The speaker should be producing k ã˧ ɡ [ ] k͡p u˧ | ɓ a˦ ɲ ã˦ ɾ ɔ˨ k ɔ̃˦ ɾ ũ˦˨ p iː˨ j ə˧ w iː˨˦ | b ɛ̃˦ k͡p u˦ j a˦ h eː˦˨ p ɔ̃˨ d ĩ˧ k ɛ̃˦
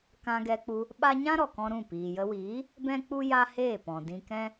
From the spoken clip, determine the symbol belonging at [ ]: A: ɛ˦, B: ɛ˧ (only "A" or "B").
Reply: B